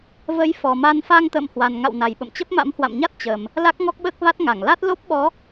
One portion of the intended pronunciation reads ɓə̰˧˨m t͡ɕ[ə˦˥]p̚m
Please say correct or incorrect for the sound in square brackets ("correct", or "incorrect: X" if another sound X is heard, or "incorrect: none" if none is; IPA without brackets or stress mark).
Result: correct